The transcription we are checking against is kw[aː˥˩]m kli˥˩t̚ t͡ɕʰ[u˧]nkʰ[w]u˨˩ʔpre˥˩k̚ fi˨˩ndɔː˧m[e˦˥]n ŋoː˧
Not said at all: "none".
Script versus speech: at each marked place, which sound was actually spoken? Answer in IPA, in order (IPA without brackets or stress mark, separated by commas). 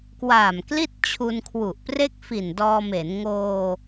aː˨˩, u˧, w, e˩˦